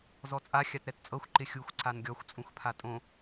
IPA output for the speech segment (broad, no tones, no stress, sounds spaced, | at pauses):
z ɔ t͡sʼ a xʲ a t ɾ ɛ t t͡sʼ ɤ xʷ ǃ ɪ xʲ u xʷ ǀ a n ɡʲ ɔ xʷ t͡sʼ ũ x pʰ a tʼ õ